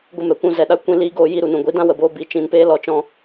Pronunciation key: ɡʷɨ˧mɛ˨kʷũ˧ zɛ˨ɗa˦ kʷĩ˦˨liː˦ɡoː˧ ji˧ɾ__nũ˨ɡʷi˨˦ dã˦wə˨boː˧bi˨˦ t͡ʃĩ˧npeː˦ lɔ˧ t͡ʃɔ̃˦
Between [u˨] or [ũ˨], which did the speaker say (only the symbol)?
u˨